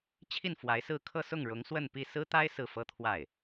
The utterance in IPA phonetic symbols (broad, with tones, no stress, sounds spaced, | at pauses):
t͡ɕʰ i˥˩ n f w a˧˥ ɪ̯ s ɹ̩˥˧ kʰ ɤ˥˧ s ʊ˥˩ ŋ ɻ ʊ˧˥ ŋ s w ə˥˧ n p i˥˩ s ɹ̩˥ t̪ a˥ ɪ̯ s ɹ̩˥˩ f ɤ˥ t̪ʰ w a˥˩ ɪ̯